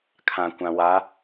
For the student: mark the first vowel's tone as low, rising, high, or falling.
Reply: low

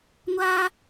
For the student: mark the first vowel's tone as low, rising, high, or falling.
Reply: high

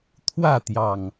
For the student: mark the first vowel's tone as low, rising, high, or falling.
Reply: falling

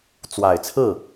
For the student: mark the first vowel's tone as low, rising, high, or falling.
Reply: low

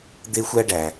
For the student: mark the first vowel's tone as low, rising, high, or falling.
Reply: high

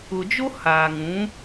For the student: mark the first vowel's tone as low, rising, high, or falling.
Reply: low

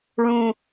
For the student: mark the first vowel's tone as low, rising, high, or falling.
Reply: low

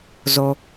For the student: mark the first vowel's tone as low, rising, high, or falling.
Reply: low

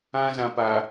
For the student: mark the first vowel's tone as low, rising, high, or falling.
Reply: high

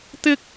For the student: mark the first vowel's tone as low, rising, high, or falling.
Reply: high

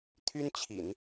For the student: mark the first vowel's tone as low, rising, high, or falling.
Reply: high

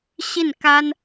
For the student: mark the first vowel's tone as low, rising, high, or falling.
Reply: falling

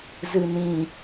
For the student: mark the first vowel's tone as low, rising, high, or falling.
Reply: low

